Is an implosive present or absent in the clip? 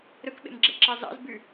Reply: present